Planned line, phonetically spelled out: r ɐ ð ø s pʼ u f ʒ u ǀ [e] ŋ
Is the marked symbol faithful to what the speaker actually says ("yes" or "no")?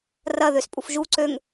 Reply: no